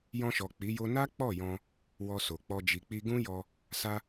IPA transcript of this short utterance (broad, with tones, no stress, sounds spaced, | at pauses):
j ɔ̃˧ ʃ ɔ˨ k͡p i˨˦ j o˦ n a˦ k͡p ɔ˦˨ j ɔ̃˧ | w ɔ˧ s o˨ k͡p ɔ˧ d͡ʒ i˨ k͡p i˧ ɡ ũ˦ j ɔ˧ | s a˧